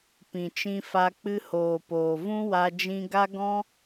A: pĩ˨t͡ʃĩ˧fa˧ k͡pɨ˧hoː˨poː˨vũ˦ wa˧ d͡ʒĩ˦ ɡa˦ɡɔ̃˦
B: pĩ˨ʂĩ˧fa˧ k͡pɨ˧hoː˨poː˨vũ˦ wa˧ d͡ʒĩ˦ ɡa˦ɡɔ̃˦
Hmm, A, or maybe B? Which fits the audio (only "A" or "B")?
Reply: A